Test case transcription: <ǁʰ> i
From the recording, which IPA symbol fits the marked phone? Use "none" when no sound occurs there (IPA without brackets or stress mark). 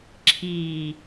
ǁʰ